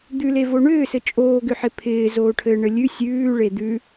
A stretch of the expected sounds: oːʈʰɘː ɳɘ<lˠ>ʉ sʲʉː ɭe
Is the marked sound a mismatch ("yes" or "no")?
yes